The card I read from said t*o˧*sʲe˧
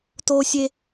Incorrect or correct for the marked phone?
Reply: correct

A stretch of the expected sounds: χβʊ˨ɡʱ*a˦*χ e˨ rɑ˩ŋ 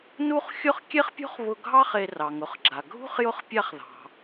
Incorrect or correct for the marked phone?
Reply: incorrect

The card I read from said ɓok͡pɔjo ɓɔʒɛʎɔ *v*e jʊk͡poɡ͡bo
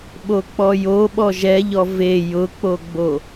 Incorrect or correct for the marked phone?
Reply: correct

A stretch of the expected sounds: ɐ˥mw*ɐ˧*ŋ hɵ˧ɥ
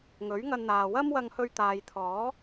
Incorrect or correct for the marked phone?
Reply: correct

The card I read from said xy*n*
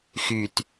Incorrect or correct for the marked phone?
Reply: incorrect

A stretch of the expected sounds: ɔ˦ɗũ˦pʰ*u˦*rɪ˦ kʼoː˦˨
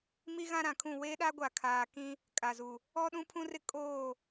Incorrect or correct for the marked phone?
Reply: incorrect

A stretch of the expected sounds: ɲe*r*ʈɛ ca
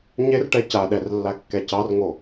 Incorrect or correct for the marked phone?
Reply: correct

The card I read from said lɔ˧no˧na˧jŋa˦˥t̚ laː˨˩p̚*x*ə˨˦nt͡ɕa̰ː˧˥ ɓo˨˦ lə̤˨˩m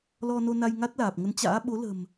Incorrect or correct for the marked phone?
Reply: incorrect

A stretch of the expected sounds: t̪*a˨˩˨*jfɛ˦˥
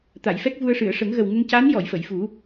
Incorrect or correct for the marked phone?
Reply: correct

